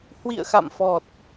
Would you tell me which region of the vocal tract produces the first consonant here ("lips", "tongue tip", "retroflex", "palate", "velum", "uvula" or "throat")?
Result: throat